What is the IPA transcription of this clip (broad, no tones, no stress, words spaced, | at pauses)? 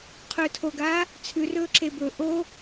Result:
qʰɵːtʰoɡaː | t͡sʰʉrɵː ǁebɵ ʔo